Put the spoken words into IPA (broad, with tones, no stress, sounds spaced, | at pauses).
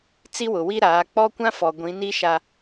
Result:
t͡s i˦ w ʊ˨ w i˦ ɾ aː˨˦ k͡p ɔ˦ kʷ ã˦ f ɔ˨ ɡʷ ĩ˨˦ n i˦ ʃ a˨